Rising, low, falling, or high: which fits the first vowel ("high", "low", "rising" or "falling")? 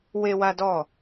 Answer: high